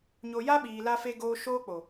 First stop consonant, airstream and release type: implosive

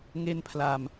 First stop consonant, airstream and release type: aspirated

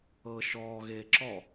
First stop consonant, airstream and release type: click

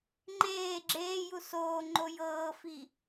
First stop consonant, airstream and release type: click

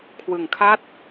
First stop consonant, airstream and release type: aspirated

